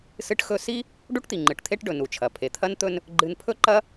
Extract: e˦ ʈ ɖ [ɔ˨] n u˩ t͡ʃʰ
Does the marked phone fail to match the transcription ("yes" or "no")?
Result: yes